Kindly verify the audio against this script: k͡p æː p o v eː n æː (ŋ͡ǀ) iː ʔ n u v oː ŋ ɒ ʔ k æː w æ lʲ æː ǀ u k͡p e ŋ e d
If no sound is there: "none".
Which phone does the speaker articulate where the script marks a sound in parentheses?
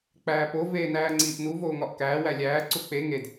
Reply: ŋ͡ǀ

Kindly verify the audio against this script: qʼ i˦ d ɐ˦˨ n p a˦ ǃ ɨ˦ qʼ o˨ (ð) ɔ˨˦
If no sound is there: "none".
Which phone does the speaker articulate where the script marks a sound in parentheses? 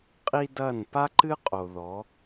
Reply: ð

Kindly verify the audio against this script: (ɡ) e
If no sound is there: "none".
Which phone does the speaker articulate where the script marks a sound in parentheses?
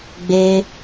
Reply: ɡ͡b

